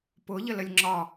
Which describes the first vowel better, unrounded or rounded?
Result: rounded